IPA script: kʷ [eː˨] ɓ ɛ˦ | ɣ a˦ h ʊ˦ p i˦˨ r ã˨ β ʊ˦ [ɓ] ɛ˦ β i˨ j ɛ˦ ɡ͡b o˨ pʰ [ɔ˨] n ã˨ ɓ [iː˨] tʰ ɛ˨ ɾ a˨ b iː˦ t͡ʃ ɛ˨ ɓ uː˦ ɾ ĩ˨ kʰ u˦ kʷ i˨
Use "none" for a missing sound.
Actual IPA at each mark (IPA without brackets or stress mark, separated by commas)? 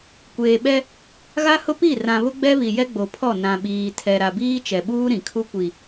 eː˨, ɡ͡b, ɔ˦˨, iː˨